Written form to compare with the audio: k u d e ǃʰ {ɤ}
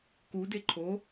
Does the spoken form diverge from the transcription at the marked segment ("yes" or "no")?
yes